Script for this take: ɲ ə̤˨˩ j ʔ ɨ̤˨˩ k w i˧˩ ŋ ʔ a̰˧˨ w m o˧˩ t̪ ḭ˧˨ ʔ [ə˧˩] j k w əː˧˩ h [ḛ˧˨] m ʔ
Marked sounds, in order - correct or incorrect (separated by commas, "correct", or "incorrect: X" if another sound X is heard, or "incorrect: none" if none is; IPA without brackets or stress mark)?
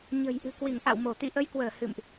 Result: incorrect: ə˨˦, incorrect: ɨ̰˧˨